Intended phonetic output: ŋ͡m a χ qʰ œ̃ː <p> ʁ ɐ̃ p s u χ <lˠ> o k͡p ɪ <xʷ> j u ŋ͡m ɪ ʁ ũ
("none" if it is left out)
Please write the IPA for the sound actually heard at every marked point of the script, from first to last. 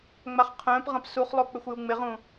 p, lˠ, xʷ

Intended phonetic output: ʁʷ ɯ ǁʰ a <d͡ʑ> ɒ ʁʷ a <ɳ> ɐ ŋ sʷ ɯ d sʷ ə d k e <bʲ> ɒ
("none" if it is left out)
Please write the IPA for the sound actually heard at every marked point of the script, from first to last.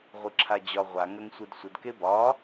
d͡ʑ, ŋ, b

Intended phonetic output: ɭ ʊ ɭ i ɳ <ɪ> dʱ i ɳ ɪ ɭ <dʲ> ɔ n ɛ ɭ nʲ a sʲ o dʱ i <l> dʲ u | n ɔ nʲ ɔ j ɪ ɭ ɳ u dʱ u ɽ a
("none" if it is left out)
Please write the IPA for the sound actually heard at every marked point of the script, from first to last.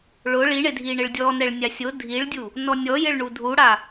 ɪ, dʲ, ɭ

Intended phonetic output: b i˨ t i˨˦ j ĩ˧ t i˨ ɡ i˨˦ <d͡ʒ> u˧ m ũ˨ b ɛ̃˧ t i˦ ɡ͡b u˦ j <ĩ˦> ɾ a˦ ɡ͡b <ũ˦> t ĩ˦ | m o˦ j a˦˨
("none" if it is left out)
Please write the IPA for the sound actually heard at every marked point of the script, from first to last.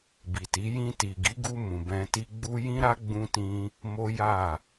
ɡ, ĩ˦, ũ˦

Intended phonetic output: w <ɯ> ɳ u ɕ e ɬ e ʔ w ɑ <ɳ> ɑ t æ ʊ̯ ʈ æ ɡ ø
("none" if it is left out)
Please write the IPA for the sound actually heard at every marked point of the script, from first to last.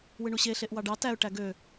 ɯ, ɖ

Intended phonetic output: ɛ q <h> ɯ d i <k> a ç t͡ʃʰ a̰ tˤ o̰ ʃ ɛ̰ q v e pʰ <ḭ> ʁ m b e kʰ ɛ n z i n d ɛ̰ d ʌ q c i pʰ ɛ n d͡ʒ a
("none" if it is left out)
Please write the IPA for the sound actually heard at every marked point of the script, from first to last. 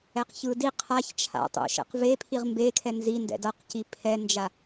ç, qʰ, i

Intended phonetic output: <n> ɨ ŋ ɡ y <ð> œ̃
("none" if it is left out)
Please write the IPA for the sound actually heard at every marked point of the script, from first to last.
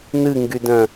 n, d

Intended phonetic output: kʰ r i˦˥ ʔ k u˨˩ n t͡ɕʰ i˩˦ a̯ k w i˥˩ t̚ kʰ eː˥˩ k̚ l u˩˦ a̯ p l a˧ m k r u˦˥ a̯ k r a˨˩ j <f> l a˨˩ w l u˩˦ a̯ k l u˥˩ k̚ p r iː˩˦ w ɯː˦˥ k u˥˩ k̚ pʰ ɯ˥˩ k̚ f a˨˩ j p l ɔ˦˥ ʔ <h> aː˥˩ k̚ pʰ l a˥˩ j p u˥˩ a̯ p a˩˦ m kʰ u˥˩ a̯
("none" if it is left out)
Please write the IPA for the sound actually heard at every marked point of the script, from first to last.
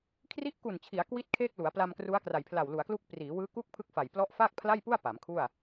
pʰ, f

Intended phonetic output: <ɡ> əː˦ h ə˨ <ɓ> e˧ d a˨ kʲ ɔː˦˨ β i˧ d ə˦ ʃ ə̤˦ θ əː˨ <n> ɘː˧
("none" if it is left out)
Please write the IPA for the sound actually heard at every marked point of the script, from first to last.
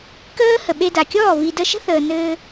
k, ɓ, n

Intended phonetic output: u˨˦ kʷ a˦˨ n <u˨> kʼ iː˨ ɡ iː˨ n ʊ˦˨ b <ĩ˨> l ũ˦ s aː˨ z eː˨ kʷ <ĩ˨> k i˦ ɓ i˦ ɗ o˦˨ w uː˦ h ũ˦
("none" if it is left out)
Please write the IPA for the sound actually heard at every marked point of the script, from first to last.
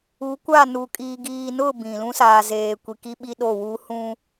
u˨, ĩ˨, i˨

